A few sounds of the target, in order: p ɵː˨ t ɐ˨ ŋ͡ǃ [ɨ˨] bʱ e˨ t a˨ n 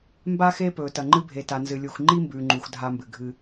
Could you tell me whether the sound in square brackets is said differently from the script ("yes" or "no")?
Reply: yes